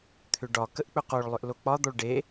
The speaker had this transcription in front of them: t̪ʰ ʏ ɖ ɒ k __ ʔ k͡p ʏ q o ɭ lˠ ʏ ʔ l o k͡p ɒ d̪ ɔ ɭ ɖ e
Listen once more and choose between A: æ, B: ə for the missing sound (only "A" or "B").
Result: B